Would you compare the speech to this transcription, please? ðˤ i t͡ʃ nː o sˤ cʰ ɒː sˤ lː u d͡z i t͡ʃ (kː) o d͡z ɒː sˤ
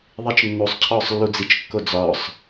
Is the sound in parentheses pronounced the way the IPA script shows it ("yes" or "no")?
yes